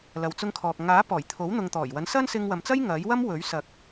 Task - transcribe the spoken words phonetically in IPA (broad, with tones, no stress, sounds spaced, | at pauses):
l ɐ˨ w t͡s ʊ˧ ŋ kʰ ɔː˨ k̚ ŋ aː˨˥ p ɔː˨˩ j t̪ʰ o˨˥ w n̪ ʊ˨ ŋ t̪ ɔː˨˩ j w ɐ˨˥ n s ɐ˥ n s ɪ˧ ŋ w ɐ˨ m t͡s ɐ˥ j ŋ ɐ˨˥ j w ɐ˥ m w ɵ˨˥ ɥ s ɐ˨ k̚